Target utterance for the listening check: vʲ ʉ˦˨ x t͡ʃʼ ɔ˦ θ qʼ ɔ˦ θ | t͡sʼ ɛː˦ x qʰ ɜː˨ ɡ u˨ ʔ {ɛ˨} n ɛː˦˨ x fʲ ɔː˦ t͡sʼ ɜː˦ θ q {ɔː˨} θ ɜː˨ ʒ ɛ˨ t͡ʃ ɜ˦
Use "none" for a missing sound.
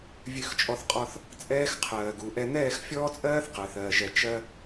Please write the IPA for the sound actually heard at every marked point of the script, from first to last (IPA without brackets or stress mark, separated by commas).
ɛ˦, əː˨